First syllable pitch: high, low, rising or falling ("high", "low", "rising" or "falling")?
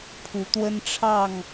rising